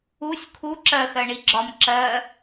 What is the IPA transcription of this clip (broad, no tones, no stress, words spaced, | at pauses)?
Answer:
usʲ kʰu ǁɜxɜ ɳiɡ͡ǁɒm ǁɜ